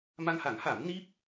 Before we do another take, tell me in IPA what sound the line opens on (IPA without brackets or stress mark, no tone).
m